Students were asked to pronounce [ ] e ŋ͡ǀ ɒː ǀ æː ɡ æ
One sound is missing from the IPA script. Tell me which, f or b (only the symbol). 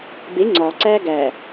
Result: b